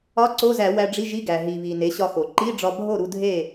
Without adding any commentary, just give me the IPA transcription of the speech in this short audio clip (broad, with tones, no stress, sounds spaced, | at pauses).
ɒ˧˥˧ ǀ o˧˥˧ z æ˧˩˧ w æ˧ ɖ͡ʐ i˧˥˧ ʒ i˧˥˧ ɡ æ˩ ɦ i˩ β i˩ n e˩˥ ɕ ɒ˧ x o˩ ǃ i˧˥˧ ɖ͡ʐ ɒ˧ bʱ o˥˨ ɾ u˧ dʱ e˥˨